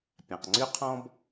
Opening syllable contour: low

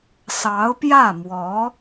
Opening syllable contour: rising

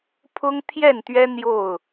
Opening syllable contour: high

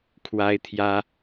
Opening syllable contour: high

